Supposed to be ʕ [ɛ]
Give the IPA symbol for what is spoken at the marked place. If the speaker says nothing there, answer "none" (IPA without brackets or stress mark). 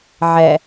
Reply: ɛ